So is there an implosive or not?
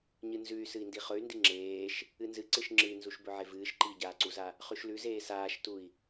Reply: no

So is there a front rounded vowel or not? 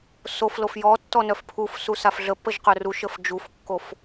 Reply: yes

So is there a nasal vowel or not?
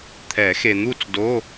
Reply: no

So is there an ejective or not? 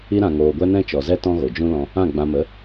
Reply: no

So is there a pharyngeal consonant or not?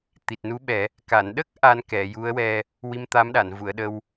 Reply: no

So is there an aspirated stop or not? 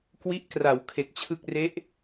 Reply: yes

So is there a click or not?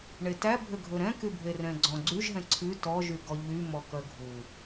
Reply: yes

